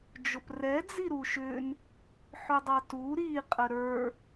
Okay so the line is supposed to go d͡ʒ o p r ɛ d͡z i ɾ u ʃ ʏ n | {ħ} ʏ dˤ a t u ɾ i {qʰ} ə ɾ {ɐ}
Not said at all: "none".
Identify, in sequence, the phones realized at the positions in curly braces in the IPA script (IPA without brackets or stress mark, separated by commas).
ħ, qʼ, ə˞